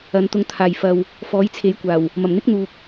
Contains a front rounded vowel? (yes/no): no